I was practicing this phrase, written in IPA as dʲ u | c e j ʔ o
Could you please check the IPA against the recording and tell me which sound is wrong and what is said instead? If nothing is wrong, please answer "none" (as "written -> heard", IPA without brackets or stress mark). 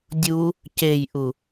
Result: o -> u